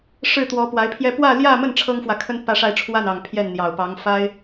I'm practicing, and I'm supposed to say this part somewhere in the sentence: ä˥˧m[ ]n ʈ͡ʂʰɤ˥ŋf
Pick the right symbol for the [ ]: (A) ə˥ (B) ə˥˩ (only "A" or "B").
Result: B